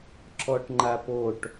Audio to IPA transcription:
ǁ ɔ ʈ ŋ͡ǃ a p o ʈ

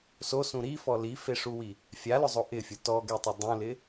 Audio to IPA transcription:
s o s ũ ɾ i f ɔ l i f e ʂ u w i | fʲ a l ʊ zˤ o ʔ ɪ fʲ ʊ t ɔ ɡ e tˤ ʊ dˤ ũ l ɪ

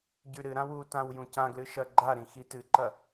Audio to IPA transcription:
ɟ ʉ ɾ ɨ ɾ ã w u t ã w j ũ c ã ɡ l ɨ ʃ ɐ ɡ͡ǃ a ɾ ĩ x i t ɨ ǃ ɐ

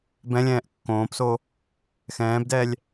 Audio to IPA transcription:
b ɛ̃ lʲ ɛ̃ː ʔ kː õː p s o | x ɛ̃ː b d ɛː lʲ

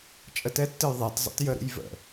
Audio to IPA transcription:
t͡ʃʼ ə t ɛ tː ɘ j ðˤ ɛ t zˤ ə̰ t j ə ɾ ṵ j v ə̰

